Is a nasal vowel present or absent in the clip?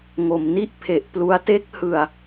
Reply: absent